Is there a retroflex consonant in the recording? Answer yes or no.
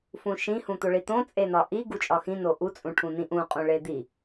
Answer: yes